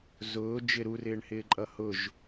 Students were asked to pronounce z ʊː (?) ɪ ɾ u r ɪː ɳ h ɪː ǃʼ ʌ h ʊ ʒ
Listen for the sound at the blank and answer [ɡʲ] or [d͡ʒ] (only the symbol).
d͡ʒ